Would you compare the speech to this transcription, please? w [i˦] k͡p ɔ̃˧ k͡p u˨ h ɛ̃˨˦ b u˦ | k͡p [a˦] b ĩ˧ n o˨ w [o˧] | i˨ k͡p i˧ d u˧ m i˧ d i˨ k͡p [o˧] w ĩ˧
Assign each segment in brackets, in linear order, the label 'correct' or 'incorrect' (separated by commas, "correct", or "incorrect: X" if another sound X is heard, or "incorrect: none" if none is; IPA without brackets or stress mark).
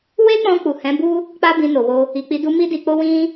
incorrect: e˦, correct, correct, correct